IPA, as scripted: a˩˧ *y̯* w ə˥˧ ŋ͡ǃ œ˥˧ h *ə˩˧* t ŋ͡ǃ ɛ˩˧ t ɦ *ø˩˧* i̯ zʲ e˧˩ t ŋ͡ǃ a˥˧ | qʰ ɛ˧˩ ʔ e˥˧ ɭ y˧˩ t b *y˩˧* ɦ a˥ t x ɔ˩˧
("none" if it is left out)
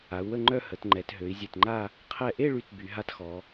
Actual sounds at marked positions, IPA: u̯, ə˩˧, ø˩˧, y˩˧

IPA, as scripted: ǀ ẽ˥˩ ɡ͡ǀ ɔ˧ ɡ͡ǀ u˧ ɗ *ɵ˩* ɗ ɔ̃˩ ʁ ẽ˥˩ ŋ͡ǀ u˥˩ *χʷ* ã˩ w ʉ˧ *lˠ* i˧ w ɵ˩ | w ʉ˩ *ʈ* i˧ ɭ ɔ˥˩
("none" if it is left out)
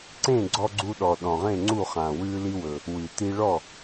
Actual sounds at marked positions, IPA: ɔ˩, χ, l, t

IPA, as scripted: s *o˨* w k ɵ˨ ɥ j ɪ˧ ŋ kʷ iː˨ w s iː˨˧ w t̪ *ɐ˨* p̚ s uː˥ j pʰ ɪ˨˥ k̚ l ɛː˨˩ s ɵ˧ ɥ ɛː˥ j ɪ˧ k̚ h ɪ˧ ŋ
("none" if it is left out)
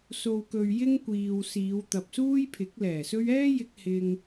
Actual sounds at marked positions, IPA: o˨, ɐ˨

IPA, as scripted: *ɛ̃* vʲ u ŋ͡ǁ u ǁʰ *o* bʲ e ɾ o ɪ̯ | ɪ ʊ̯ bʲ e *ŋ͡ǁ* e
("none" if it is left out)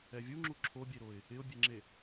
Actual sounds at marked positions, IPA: ɛ, o, ŋ͡ǁ

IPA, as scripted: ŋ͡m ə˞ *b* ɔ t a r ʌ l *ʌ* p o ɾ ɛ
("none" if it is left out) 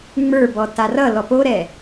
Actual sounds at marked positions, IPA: b, ɔ

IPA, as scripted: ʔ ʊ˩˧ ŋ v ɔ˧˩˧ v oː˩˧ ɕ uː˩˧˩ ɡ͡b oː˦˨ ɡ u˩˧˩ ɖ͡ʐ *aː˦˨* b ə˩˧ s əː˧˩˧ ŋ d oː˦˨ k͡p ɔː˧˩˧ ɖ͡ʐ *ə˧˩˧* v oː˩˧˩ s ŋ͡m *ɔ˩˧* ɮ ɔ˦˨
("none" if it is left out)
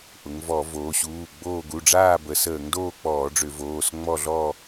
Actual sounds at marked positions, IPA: aː˦˨, ʏ˧˩˧, ɔ˦˨

